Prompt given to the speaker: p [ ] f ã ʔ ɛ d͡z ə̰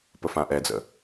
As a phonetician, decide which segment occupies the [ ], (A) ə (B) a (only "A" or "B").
A